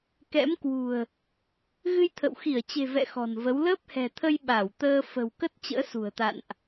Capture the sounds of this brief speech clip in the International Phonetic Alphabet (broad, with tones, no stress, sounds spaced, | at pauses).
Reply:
k ɛ̰˧˥ m k w ṳ˨˩ ə̯ | ɣ ɨ˧ j t̪ʰ ə̰˧˨ w x i˧˩ ə̯ t͡ɕ e̤˨˩ v ɛ̰˧˨ x ɔ̤˨˩ n v ə˨˦ w l əː˦˥ p̚ h ɛ̤˨˩ t̪ʰ ə˧ j ɓ a˧˩ w t̪ əː˧ f ə̤˨˩ w k ə˦˥ t̚ t͡ɕ ə̰ː˧˥ s ṳ˨˩ ə̯ t̪ a̰˧˨ n ʔ